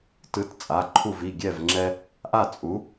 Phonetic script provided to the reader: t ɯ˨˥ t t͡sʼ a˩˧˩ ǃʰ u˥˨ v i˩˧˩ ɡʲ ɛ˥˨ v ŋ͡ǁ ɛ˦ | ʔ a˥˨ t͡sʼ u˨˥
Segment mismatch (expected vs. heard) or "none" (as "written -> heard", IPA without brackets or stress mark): none